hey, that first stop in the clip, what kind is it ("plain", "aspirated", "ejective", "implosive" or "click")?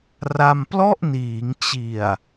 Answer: plain